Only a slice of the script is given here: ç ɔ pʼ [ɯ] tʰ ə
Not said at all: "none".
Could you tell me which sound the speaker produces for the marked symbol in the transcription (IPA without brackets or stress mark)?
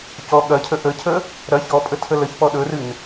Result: ə